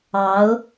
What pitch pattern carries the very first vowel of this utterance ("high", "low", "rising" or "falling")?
rising